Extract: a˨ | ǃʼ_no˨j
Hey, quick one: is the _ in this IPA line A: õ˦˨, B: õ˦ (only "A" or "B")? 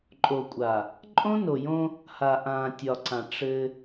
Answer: B